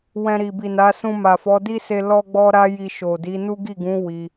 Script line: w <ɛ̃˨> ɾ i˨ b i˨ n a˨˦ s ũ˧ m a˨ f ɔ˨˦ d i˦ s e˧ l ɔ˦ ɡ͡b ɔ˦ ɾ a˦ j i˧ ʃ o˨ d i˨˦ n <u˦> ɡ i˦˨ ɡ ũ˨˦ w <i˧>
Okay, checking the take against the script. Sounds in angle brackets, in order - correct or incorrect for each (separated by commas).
incorrect, correct, correct